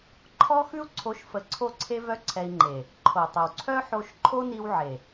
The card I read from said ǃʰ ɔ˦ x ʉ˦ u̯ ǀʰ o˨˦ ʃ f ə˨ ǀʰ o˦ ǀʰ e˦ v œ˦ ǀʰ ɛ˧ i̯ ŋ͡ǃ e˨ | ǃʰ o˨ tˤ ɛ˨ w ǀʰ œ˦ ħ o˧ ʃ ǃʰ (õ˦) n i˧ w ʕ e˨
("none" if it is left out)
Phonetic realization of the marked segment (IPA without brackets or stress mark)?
o˦